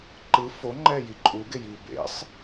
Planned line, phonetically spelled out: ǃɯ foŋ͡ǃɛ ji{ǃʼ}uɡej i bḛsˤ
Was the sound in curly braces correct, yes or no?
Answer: yes